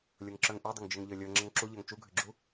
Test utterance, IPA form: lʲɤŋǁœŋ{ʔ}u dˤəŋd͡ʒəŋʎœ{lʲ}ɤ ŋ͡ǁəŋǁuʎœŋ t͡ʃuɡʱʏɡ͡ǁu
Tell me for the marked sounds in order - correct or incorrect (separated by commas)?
correct, correct